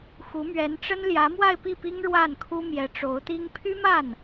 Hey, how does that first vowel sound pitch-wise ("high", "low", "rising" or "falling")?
rising